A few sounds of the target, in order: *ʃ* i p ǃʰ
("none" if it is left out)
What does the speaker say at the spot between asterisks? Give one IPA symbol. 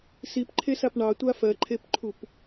s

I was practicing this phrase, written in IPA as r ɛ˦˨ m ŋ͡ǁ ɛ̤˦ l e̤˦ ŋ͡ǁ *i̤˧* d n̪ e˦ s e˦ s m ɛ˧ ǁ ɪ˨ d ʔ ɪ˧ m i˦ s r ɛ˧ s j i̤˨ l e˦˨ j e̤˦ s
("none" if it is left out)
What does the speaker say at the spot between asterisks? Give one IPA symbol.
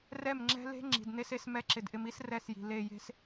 i̤˨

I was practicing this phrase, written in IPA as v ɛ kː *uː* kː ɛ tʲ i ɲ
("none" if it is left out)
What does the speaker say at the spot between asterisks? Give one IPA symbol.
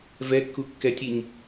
u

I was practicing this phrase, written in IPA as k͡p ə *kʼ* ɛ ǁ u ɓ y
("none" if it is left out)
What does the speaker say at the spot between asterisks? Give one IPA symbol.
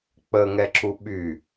ŋ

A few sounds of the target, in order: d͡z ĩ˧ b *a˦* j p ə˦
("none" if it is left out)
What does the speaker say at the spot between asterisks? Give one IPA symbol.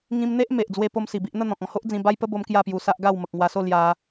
a˦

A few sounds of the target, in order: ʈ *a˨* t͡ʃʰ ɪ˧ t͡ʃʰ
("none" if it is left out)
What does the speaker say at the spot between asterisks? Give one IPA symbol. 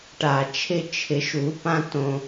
a˨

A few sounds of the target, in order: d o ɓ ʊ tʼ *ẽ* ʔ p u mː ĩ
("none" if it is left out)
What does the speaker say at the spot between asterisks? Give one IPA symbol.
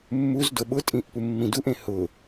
ĩ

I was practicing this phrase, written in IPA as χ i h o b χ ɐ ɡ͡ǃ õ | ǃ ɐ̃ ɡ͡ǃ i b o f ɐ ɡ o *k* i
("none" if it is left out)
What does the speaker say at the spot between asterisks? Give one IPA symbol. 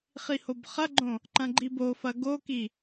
k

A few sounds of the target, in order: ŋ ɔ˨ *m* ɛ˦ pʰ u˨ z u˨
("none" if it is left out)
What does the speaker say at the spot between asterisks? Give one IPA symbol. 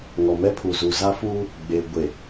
m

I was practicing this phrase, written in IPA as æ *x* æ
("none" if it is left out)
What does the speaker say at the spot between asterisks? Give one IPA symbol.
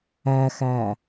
x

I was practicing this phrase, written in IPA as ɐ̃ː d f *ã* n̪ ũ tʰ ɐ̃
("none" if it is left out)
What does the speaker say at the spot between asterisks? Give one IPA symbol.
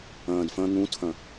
ɐ̃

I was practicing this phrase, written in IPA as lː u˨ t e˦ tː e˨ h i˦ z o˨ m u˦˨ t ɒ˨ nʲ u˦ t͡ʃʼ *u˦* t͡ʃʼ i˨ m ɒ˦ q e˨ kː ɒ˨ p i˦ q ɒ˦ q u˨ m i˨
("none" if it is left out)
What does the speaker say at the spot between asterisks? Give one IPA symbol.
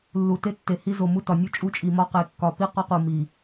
u˦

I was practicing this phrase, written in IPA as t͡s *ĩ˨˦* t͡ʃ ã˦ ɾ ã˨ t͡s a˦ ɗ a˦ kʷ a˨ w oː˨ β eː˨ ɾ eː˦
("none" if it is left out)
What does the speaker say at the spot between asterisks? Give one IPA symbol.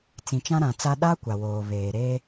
ĩ˨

